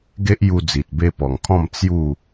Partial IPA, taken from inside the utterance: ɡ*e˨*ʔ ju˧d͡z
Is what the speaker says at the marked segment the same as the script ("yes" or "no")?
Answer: no